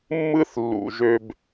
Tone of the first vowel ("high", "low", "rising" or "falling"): high